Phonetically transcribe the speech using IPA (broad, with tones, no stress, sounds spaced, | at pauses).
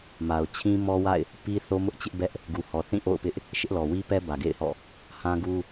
m a˨ ʊ̯ t͡ɕʰ ĩ˦ m ɔ˦ w a̰˦˨ ɪ̯ | p i˦ θ o˦ m ʊ˦ ʔ t͡ɕ ɪ˦ ʔ b ɛ˦ ʔ | ɡ u˨ h ɔ˨ θ ĩ˦˨ ʔ o̰˦˨ ʊ̯ p ɪ˦ ʔ | ʃ ɪ˦ ʔ l ɔ˨ w i˦ p ɛ˦ b ä˨ ɡ ḛ˦˨ ɪ̯ h ɔ̰˦˨ | h ã˦ ɡ u˦